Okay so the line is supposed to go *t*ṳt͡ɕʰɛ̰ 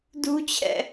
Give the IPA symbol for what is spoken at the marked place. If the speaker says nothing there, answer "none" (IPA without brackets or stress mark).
d